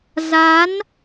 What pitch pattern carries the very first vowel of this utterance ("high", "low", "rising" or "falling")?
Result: rising